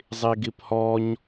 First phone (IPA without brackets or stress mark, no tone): zˤ